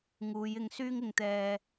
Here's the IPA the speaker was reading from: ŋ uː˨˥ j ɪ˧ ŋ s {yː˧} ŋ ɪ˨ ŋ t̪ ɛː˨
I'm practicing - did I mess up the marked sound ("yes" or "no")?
yes